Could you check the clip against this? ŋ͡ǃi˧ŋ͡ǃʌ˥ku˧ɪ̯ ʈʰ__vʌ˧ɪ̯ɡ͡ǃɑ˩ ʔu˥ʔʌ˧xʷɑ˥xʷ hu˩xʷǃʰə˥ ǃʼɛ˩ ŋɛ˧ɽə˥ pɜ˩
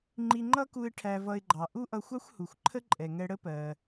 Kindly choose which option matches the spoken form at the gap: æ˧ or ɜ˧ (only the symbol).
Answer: æ˧